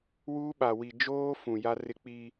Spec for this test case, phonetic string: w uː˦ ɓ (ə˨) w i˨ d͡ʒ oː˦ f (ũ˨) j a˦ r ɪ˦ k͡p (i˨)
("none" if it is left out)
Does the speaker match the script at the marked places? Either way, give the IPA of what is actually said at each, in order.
a˨, ũ˨, i˦

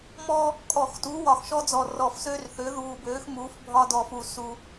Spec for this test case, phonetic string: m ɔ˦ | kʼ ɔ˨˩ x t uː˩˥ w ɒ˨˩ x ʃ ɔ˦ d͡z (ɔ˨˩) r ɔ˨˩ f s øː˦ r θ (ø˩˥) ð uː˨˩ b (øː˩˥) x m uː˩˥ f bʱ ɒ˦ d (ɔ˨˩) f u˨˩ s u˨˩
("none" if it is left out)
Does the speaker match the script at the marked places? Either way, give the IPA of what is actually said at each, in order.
ɔ˨˩, ø˩˥, øː˩˥, ɔ˨˩

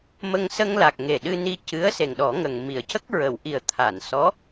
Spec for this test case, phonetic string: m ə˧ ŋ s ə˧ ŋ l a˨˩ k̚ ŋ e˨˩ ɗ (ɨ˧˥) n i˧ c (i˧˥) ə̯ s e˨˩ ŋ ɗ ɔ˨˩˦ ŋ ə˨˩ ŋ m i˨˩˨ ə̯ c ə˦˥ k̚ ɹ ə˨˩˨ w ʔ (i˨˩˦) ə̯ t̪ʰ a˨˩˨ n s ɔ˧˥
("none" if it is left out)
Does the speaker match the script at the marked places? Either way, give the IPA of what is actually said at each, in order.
ɨ˧, ɨ˧˥, i˨˩˦

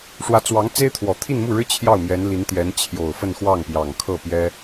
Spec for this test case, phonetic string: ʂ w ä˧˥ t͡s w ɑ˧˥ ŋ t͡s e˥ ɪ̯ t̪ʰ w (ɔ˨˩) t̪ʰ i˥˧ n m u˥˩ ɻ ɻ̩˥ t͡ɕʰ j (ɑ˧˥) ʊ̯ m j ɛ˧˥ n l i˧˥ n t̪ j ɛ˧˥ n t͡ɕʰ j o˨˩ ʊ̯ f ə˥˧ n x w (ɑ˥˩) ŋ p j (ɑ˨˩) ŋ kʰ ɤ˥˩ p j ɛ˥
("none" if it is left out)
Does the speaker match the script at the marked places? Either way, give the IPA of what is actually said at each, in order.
ɔ˨˩, ɑ˥˩, ɑ˥˩, ɑ˨˩

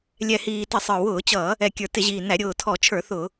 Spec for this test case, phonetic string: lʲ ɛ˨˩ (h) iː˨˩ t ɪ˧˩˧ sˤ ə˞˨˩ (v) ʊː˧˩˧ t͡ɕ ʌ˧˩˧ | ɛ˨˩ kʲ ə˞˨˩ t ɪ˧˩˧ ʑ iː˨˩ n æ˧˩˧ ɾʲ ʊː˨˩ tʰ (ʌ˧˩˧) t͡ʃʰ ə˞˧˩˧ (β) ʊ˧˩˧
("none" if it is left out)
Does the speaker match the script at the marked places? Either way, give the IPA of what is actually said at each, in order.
h, w, ɔ˧˩˧, θ

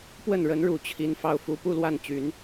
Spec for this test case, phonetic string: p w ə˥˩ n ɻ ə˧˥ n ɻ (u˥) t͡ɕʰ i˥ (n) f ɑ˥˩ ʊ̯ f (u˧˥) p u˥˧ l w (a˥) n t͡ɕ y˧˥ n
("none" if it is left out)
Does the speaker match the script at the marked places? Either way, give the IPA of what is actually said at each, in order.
u˨˩, n, u˧˥, a˥˩

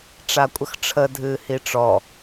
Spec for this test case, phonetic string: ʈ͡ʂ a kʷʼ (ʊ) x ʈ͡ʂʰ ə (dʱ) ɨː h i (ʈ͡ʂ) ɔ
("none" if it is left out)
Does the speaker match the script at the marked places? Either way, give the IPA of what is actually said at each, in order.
ə, dʱ, ʈ͡ʂ

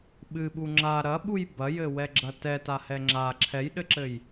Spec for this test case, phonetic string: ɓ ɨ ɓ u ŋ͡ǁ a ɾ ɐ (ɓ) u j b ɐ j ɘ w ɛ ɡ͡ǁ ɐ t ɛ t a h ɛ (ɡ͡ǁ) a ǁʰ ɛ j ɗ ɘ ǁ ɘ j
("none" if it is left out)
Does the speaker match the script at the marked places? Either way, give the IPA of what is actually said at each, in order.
ɓ, ŋ͡ǁ

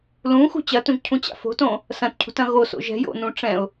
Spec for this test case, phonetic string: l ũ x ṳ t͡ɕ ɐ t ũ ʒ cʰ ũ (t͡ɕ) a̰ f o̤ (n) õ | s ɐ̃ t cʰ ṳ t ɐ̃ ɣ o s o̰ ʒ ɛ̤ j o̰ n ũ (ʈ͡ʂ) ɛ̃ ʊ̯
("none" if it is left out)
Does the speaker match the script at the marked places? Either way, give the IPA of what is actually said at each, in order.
t͡ɕ, t, ʈ͡ʂ

